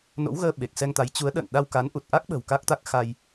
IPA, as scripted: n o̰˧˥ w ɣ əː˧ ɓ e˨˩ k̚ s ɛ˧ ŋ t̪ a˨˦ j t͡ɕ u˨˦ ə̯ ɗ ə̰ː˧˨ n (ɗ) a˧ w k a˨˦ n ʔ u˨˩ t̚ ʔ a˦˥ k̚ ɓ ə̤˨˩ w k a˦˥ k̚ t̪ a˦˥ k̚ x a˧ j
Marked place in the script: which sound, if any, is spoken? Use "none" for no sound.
ɗ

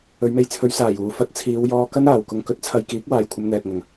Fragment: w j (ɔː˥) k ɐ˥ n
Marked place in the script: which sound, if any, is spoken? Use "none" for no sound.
ɔː˧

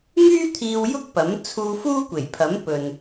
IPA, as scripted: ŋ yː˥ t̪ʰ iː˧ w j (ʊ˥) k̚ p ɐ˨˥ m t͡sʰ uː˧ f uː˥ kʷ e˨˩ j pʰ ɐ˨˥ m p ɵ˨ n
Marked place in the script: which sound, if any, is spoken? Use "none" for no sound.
ʊ˥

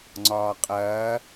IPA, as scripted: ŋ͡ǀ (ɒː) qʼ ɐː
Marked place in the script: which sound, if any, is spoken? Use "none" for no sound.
ɒː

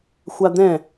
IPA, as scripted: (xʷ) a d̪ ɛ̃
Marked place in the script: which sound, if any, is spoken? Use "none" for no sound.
xʷ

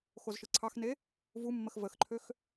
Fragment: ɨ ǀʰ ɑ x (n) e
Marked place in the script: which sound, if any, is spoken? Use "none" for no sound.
n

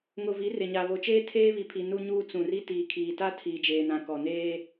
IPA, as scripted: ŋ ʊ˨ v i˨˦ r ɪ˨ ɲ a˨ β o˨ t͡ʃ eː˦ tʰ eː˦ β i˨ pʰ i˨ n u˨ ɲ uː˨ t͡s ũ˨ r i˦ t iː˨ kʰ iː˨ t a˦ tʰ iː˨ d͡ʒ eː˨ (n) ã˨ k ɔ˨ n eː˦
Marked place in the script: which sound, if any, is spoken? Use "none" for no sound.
n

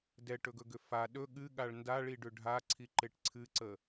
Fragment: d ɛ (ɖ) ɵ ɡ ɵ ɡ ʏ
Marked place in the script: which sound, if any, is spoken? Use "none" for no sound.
ʈ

